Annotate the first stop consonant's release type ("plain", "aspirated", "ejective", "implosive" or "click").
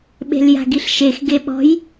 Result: implosive